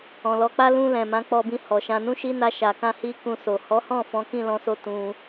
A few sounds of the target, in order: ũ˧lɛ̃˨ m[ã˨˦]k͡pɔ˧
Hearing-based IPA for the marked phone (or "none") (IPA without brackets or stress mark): ã˨˦